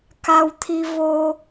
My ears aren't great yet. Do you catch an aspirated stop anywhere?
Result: yes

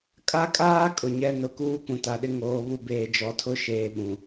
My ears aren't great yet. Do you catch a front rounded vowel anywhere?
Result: no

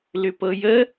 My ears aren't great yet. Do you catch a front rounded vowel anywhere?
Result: yes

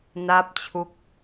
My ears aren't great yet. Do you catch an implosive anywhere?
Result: no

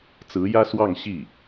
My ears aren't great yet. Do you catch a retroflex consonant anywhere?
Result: no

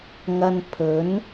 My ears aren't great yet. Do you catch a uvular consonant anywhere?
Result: no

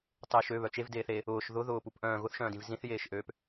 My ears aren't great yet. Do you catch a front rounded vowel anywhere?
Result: yes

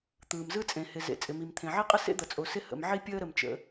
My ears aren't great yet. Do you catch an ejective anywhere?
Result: yes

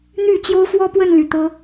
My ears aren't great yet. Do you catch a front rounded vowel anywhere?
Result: yes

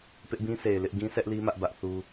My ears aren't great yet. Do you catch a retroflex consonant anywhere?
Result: no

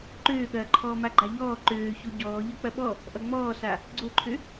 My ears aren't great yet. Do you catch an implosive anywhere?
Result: yes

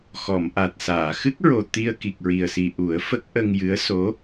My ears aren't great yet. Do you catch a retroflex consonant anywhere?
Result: no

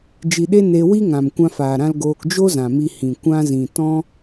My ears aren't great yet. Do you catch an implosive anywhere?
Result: yes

